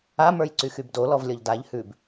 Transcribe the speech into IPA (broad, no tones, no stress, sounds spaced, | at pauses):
a m ə˞ j ǀ y x y b d o l ɔ v lʲ ɔ ʎ d a ʎ h ʉ b